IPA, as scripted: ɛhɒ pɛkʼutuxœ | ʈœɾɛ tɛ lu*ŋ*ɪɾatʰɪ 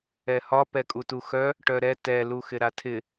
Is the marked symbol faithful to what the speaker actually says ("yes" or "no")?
no